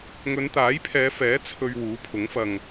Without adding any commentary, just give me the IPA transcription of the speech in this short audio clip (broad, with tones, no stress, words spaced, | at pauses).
ŋɵ˨˧nt̪aː˨˥jpʰɛː˨˧fɛː˨˥ t͡sʰɵ˧ɥ wuː˨˥pʰʊ˨˥ŋfɐ˧ŋ